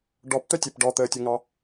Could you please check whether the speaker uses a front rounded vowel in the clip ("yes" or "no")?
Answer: yes